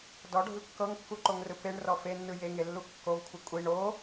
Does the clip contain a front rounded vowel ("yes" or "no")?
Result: no